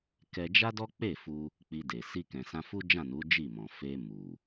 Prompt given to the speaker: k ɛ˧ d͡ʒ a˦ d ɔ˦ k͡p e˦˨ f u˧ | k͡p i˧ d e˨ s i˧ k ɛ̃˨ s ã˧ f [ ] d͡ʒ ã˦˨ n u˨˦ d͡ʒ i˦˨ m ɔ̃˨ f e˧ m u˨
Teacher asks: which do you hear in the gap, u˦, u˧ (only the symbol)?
u˦